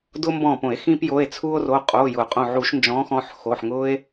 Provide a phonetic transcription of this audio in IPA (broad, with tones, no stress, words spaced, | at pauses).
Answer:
dʊː˦mbɔ̃ː˧˩põ˧˩˧e̯ xĩː˦pjo˩˧˩e̯ t͡sʰu˦o̯ro˩˧˩ qʼoː˩˧˩jʊː˧˩˧ qʼõ˧˩ʕu˧˩˧ʃnd͡ʒɔ̃ː˨˥xɔ̃˩˧˩ħ xo˩˧˩ħŋʊː˦e̯